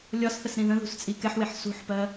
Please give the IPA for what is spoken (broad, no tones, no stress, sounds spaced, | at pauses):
lʲ ɒ s θ ə s ɾ ĩ ð ə̃ ð ṳ s t͡sʼ i k ɛ ħ w ɪ ħ s ṳ ħ p ɜ